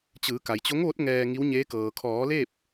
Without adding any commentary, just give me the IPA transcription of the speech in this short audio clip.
t͡ɕɯː˩˧ka˩jt͡ɕo˧˥ŋʋo˧˥t̚ ŋɛː˧ ŋi˧˥wɲeː˧˥kɤː˩ kʰɔː˩˧le˥˨p̚

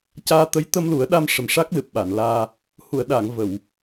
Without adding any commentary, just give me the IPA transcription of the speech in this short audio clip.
caː˧t̪ə˧˥j t̪ə˧mlu˨˩˦ə̯ɗa˧m ʂə˨˩mʂa˦˥k̚lɨ˨˩p̚ ɓa˨˩˨nlaː˧ | hu˨˩˨ə̯ɗaː˨˩˨ŋ və˨˩˨w

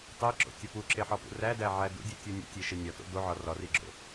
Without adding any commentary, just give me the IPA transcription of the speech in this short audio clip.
tˤeǁo̰tʲɒ puǁeħɒpṵ rædæʕæ dṵdʲutʲu nʲṵtʲeʃe nʲɒto̰ doʕɒ rɒriɡ͡ǁo̰

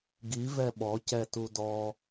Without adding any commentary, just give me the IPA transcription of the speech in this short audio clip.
ɡi vɛɓɔ cɛtudɔ

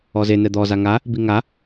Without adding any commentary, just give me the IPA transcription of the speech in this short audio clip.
ɔze nɛd̪ɔza ŋa | biŋa

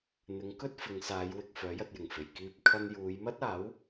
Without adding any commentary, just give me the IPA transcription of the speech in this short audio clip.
n̪ɪ˨˧ŋkɵ˥t̚ fɪ˨˧ŋsaː˨˧jwɪ˨k̚ fœː˨˥jɐ˧t̚jɪ˨˩ŋfe˨˩j kiː˧p̚ kʰɐ˧njuː˨˧jmɐ˥t̚aː˨˥w

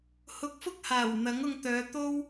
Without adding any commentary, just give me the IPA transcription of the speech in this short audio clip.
hʊ˧k̚fʊ˥k̚haː˨˩w n̪ɐ˨˥ŋʊ˧ŋt̪œː˨˧ t̪o˥w

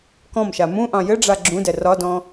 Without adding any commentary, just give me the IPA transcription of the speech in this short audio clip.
kɔ̃mʃa mũʔɑ̃ jɘɖ͡ʐa ɡ͡ǁũdɛ rɒdɔ̃

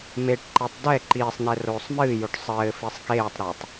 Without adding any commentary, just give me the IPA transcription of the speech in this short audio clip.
meʈǃetˤ dɛ ǃiːsˤnɛ roːsˤmɨːjoʈ sˤɘː fisˤkeːtˤɾɘːtˤ

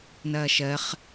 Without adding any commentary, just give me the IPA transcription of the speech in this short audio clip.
nɐːʃɜχ

